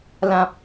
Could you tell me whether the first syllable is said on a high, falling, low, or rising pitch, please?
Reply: low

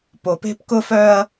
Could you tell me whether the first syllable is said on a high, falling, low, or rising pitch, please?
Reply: low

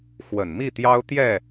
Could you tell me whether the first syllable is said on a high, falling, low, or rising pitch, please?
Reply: low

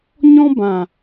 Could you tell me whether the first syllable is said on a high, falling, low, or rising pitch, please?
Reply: high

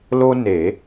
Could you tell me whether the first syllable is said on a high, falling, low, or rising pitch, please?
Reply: high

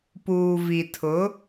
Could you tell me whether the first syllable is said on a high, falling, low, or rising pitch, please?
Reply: low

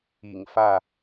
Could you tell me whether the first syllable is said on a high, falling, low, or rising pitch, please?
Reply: low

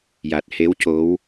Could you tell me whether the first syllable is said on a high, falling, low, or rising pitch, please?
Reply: low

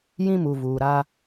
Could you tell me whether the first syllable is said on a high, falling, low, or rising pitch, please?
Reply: high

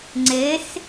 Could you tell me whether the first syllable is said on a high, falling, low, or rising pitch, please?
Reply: rising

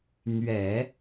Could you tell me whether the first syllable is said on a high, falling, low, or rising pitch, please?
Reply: low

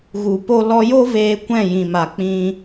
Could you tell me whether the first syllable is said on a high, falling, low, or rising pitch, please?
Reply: low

